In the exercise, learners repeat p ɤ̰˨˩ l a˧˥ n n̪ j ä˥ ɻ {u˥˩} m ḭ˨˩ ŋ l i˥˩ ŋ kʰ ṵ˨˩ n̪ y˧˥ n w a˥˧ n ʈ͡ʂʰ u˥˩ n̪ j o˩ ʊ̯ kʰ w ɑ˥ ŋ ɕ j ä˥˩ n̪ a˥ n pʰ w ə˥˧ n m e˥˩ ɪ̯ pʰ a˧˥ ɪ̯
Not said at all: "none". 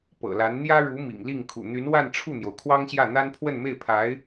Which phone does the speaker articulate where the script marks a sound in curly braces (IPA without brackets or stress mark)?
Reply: u˧˥